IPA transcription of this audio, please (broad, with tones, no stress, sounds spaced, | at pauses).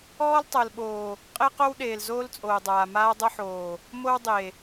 ɔː˦ l tˤ ɤ˨ l ɓ oː˨ | qʼ e˦ q o˦ w ɗ eː˨ l z oː˦ l t͡sʼ oː˨ dˤ aː˨ m aː˦ dˤ ɤ˦ ħ oː˨ | m o˦ w dˤ e˨